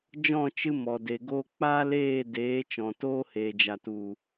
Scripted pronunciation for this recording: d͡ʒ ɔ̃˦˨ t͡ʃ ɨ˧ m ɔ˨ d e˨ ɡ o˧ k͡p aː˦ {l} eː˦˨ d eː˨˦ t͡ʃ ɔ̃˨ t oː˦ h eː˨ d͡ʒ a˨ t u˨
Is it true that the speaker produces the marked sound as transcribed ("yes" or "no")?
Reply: yes